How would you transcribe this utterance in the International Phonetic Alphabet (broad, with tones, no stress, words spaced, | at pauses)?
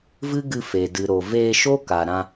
vɨ˦ɡɨ˧fe˨ dɨ˨ ɾo˨veː˧ʃo˦ ka˨ɾã˧